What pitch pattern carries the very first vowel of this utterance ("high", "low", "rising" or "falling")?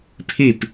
falling